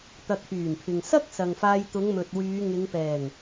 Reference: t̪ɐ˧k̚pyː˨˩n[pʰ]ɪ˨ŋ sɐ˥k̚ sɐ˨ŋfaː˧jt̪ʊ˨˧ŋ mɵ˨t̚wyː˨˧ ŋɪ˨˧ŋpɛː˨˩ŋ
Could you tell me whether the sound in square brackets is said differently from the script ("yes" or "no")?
no